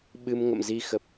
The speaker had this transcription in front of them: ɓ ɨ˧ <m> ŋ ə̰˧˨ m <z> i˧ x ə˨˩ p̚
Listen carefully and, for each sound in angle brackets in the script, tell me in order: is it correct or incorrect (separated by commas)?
correct, correct